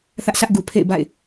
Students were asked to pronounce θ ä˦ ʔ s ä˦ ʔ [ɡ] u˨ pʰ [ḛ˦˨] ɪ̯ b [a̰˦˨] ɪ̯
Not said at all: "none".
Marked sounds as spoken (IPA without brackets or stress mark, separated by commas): ɡ, ḛ˦˨, a̰˦˨